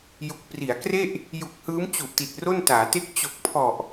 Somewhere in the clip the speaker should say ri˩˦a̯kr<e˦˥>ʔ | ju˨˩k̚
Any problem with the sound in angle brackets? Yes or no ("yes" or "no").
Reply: yes